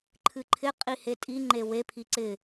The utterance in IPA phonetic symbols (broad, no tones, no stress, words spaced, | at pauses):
ǃʰɨǃʰɪ qʼihetʼiŋ͡ǃe wepʰi ǀɪ